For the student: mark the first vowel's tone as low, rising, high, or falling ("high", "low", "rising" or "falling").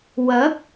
rising